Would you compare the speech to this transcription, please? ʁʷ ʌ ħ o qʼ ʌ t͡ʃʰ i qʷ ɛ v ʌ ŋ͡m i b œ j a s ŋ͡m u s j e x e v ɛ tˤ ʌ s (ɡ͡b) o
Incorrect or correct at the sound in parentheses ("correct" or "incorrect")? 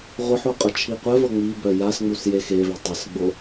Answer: correct